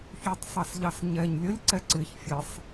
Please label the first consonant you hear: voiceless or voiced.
voiceless